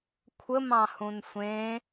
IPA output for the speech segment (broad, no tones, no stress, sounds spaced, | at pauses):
kʷʰ ə m ɑ̃ h ũ n sʷ ẽ